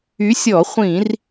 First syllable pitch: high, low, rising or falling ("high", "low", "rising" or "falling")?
rising